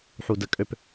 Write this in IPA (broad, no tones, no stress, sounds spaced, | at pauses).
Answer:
ħ u d ə kʼ ø p